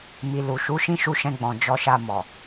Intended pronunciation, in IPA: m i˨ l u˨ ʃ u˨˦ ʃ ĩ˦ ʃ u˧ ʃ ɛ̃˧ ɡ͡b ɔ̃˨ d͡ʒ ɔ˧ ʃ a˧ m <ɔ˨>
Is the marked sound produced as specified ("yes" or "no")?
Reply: yes